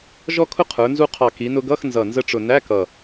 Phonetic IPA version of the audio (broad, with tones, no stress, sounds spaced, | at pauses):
ʒ ɔ˥ kʰ ʊ˥ qʰ ə˞˩˧ n z u˧ qʰ ɑ˨˩ k i˩˧ n ʊ˧ ɡ ʌ˧˥˧ x n z ʌ˨˩ n z ə˧ ʈ͡ʂ ʊ˨˩ n æ˧˥˧ k ʌ˨˩